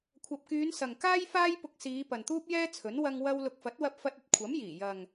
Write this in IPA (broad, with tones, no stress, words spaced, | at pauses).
kʷʰɐ˨p̚kyː˨˧n sɐ˨ŋkaː˥jfaː˥jpʊ˧k̚ siː˨˧ pɐ˨nt̪uː˥p̚jɛː˥t͡sʰɵ˨˥n wɐ˧ŋ wɐ˥w lʊ˨k̚fɐ˨˥t̚wɐ˧p̚fɐ˧t̚ ɐ˧t̚kʷʰɐ˨˥mjiː˨˩ jɐ˨ŋ